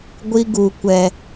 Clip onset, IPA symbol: ɡʷ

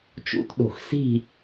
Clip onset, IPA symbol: t͡ʃ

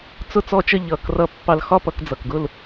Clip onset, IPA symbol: t͡s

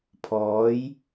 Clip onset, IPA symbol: pʰ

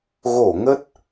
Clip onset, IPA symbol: ɣ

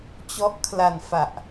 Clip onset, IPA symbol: t͡ɕ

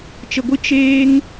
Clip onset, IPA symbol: t͡ʃ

